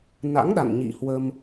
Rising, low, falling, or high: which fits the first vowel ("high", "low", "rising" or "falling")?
rising